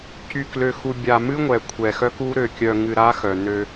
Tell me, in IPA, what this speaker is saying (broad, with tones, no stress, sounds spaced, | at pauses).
c y˨ k l ø˨ x u˨ bʲ a˨ m ɨ˦ ŋʷ ɛ˨ kʷʰ ɛ˨ x œ˦ k u˦ ɾ ø˨ kʲ œ˨ ŋ ɨ˨ ɾ a˦ x œ˨ n ø˦